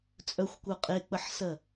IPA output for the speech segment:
t͡sʼœxʷkʷœ qʼek͡pəħsɜ

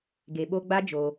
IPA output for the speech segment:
ɡe˨ɓo˧ɡ͡ba˦ d͡ʒo˧

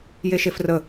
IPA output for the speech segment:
jeʃefrə

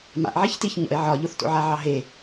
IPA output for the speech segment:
ma̰ʔʕiç tiçɲɔ̰e̯ ʕɒʎoθto̰ʕa ʕɑɦe

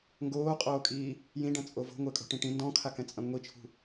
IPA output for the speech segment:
ŋɡoːqʼoːkʼiː | jĩɖɐ̃t͡sʼo vo̤ŋʷɘːkʼo̤ʈĩ ʈĩ ndɔ̃kʰakɛ̃t͡sʼɐ̃ ŋʷit͡ʃʰṳ

